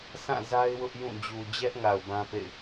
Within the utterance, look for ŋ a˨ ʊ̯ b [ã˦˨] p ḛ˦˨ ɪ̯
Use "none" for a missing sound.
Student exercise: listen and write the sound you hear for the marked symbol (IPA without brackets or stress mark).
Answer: ã˦